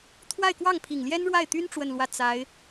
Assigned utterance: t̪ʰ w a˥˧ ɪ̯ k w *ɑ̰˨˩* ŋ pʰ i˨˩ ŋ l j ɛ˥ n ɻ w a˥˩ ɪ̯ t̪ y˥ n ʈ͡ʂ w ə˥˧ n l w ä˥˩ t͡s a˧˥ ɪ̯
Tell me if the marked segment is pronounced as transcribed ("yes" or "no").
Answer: no